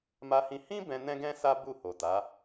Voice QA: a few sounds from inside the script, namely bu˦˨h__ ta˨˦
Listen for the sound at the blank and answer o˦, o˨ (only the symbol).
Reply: o˨